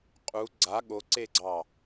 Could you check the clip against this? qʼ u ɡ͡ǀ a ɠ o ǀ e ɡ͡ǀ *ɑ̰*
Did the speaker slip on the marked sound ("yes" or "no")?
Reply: yes